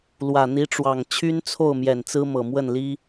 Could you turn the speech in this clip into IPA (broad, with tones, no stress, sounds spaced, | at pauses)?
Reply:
l w ä˨˩ n̪ i˧˥ ʈ͡ʂ w ɑ˨˩ ŋ t͡ɕʰ y˥ n t͡sʰ o˥˩ ʊ̯ m j ɛ˨˩ n t͡s ɹ̩˥ m ɤ˨˩ m w ə˥˩ n l i˥